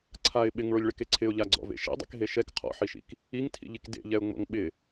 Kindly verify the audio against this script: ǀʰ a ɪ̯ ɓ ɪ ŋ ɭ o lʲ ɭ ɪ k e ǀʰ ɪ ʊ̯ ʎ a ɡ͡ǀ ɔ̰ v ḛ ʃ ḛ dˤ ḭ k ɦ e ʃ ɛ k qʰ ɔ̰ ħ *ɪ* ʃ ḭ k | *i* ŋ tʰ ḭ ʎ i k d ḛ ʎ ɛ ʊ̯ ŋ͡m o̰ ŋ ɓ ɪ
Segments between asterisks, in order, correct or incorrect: incorrect, correct

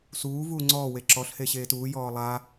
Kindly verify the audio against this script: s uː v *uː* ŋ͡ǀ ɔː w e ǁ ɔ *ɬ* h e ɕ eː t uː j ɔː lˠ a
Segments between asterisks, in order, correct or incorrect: correct, correct

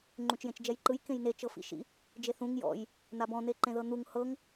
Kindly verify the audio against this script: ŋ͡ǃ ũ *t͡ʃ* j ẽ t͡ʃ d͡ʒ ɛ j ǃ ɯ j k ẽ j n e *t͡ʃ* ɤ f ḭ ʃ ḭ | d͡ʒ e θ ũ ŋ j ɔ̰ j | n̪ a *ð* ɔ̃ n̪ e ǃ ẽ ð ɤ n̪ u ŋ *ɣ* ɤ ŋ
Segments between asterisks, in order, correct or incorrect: correct, correct, incorrect, incorrect

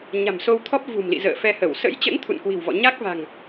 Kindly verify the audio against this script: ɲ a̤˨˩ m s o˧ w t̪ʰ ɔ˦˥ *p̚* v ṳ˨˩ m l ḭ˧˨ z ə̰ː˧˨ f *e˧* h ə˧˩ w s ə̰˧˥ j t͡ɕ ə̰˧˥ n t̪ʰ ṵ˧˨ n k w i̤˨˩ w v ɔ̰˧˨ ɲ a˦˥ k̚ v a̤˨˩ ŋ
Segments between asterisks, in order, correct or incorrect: correct, incorrect

